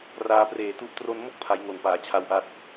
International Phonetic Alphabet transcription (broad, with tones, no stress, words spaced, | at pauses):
raː˧preː˨˩tu˦˥ʔ tro˧n mo˦˥k̚pʰa˩˦j ŋo˨˩npaː˩˦t͡ɕʰa˧wʔa˦˥t̚